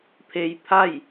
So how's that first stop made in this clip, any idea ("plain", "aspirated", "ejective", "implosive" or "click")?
aspirated